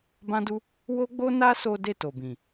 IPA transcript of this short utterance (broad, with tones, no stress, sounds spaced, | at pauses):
b ã˦ d u˦ | w o˦ ɡ͡b o˦ n a˦ s o˦ d e˦˨ t o˨ b ĩ˨